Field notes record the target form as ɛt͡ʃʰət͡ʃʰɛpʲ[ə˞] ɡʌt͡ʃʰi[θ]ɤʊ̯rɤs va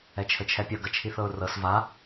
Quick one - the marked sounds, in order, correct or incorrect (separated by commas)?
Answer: incorrect, correct